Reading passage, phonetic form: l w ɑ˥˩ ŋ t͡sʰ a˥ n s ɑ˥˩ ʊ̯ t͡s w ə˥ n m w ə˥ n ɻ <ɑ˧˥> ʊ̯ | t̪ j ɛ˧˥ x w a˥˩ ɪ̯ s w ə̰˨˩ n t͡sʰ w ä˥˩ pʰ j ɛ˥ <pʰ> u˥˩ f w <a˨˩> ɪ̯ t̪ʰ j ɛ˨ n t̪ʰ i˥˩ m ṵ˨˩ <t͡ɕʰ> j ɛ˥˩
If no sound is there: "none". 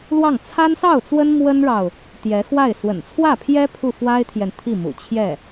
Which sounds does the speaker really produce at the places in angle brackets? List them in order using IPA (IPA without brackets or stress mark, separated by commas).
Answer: ɑ˨, pʰ, a˥, t͡ɕʰ